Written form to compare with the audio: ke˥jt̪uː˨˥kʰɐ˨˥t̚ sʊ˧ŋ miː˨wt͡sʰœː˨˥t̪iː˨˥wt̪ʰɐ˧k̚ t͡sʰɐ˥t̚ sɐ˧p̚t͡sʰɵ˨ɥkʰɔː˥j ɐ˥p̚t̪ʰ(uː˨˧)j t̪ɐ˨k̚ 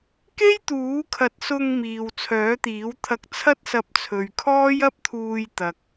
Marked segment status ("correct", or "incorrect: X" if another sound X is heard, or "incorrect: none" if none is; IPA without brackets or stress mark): incorrect: uː˧